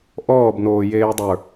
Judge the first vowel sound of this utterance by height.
mid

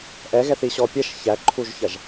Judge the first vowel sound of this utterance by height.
mid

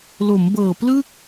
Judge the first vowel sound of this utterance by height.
mid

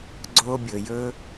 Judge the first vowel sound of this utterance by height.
mid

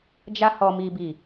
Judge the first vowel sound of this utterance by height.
low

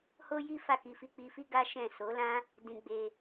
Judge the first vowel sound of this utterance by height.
mid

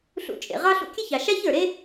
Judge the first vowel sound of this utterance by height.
high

